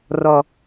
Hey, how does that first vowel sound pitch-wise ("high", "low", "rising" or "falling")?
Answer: low